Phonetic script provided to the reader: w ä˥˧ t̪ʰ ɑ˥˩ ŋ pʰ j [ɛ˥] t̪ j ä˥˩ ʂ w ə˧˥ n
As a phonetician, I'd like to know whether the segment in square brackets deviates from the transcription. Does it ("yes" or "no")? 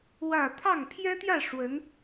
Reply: no